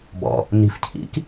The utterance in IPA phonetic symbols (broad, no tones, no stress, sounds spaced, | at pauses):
b ɔ̰ | n i̤ f cʰ ḭ k